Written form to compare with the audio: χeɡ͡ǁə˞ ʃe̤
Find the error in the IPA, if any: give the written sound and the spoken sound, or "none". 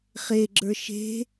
none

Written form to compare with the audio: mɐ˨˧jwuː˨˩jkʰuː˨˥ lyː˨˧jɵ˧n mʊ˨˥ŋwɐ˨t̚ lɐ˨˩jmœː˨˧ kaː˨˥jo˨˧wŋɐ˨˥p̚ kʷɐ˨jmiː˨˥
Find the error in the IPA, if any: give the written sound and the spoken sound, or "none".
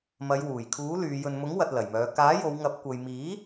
none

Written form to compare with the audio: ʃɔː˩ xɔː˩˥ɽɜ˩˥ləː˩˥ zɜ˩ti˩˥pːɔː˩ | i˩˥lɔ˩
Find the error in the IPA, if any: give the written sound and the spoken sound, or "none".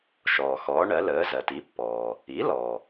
ɽ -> ɳ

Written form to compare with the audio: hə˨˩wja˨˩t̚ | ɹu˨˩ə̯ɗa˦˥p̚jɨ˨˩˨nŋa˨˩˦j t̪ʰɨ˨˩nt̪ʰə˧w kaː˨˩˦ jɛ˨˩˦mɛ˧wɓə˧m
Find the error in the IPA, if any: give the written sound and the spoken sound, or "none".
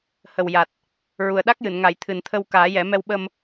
p̚ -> k̚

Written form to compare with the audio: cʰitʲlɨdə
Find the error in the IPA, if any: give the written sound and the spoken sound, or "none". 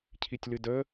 none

